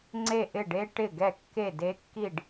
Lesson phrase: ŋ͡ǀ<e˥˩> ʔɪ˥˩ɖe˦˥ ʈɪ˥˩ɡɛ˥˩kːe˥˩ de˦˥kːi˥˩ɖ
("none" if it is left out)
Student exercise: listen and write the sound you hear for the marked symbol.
e˥˩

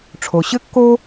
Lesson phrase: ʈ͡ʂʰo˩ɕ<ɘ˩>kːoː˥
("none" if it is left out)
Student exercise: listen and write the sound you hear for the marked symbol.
ɘ˥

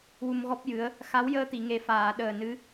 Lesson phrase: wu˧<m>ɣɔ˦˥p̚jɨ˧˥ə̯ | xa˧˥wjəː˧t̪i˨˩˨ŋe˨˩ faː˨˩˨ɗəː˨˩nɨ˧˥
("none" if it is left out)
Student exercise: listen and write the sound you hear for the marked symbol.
m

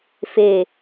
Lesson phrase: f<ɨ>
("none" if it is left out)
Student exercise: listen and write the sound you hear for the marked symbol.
e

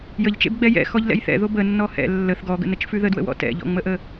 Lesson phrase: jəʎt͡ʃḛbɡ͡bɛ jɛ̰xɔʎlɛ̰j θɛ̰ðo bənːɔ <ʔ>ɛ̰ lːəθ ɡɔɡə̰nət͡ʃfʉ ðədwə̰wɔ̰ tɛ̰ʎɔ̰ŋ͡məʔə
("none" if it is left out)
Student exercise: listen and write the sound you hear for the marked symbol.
h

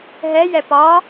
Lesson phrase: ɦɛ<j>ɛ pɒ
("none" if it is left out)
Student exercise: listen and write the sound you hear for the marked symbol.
j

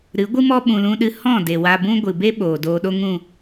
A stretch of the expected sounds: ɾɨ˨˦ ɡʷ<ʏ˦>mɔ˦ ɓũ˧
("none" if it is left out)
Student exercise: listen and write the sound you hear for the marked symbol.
ɨ˦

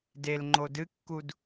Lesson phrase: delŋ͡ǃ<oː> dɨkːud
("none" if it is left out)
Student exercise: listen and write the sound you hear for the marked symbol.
o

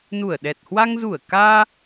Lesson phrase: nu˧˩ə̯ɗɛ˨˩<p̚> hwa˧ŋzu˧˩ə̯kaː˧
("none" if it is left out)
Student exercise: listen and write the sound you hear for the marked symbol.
t̚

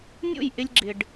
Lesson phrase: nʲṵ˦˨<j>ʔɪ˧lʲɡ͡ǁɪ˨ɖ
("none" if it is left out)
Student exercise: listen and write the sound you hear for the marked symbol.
j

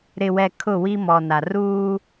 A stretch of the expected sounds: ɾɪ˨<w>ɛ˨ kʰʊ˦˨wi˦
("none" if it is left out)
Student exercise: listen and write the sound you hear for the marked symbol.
w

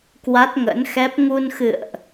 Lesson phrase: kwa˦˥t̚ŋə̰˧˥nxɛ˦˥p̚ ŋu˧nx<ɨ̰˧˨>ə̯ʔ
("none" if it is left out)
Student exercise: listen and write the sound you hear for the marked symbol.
ɨ̰˧˨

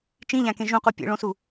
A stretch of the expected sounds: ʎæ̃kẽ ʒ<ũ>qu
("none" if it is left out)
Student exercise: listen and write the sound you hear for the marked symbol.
ũ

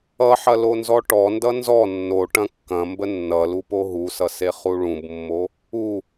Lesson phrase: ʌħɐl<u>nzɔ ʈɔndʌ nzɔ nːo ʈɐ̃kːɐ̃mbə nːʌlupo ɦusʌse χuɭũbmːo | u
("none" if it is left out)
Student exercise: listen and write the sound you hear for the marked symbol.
o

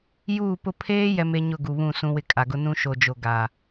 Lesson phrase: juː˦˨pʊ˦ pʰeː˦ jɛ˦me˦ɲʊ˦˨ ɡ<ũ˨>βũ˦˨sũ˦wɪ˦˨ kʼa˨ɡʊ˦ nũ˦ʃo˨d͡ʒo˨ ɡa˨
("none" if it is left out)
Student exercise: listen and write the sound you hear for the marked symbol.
u˨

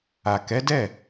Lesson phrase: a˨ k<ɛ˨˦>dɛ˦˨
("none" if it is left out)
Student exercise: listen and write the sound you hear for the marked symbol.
ɛ˨˦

